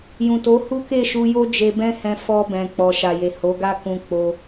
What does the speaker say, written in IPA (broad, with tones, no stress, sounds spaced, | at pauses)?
j ũ˨ t o˨˦ h u˦ k e˦˨ ʃ u˧ j o˦ d͡ʒ e˧ b ɛ̃˦ h ɛ̃˧ f ɔ˧ b ɛ̃˨ k͡p ɔ˨ ʃ a˨ j e˨ h o˨˦ ɡ a˦ k ũ˧ k͡p o˧